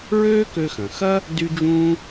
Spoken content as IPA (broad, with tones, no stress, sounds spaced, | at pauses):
ɹ øː˥ k ø˧ x ɐ̃˩ x ɐ˥ | d y˥ d͡ʒ ũː˥